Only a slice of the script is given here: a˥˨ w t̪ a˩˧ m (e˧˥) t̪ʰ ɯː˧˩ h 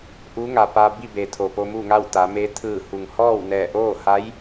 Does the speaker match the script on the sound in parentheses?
yes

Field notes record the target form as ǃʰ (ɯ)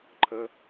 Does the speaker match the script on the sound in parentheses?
no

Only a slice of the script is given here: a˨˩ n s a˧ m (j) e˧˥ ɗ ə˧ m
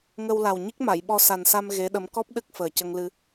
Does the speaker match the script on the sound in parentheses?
no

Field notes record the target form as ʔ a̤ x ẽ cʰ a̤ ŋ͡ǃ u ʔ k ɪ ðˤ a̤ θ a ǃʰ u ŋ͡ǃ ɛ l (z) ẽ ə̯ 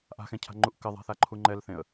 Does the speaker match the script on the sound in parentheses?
no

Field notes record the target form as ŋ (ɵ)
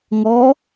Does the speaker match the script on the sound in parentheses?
no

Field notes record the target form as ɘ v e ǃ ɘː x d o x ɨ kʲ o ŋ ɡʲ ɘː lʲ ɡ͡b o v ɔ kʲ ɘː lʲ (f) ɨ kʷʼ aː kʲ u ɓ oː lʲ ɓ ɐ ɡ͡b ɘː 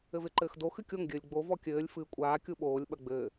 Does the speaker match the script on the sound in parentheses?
yes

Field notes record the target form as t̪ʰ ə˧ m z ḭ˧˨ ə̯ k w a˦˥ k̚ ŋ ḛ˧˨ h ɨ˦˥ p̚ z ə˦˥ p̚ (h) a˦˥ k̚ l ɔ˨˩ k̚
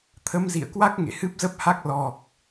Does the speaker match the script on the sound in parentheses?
yes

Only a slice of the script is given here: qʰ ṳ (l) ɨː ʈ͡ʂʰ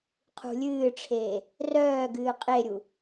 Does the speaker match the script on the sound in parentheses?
no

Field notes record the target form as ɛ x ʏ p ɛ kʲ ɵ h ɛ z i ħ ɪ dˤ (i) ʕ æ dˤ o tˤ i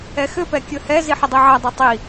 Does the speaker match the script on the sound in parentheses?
yes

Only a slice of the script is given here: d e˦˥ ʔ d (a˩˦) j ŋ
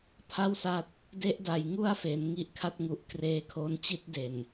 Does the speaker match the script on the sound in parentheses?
yes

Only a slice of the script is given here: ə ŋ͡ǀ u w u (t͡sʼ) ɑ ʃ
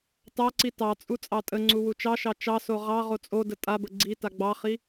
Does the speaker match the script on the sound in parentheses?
no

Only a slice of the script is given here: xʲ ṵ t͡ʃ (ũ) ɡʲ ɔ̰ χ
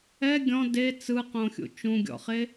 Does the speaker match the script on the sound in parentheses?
yes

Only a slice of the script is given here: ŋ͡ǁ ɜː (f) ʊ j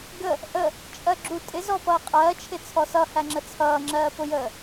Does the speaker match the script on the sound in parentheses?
no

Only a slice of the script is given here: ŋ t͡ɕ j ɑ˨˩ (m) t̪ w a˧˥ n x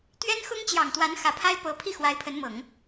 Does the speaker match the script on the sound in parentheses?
no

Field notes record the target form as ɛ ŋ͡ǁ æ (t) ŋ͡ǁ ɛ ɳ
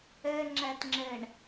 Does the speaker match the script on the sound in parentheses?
yes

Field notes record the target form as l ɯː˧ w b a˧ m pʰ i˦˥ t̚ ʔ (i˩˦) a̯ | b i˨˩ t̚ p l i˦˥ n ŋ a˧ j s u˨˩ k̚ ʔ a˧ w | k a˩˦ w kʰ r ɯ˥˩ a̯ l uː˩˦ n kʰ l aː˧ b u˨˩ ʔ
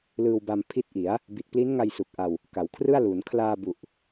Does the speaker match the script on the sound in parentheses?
yes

